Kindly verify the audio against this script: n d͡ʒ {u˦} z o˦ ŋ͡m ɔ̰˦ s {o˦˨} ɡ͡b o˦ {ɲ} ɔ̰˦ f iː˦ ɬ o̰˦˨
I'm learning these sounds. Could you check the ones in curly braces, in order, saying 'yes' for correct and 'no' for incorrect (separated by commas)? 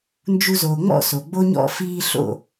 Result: yes, no, yes